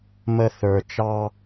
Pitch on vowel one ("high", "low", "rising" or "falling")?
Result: high